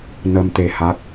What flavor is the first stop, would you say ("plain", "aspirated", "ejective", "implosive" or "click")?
plain